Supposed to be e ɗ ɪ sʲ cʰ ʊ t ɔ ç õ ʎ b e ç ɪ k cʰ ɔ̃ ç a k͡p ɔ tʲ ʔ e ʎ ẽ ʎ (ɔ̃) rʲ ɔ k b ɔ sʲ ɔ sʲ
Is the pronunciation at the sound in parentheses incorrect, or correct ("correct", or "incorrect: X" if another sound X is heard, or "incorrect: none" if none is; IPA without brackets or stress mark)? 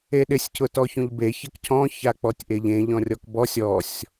correct